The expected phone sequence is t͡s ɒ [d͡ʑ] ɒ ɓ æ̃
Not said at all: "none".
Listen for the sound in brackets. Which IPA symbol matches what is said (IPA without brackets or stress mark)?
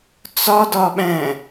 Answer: d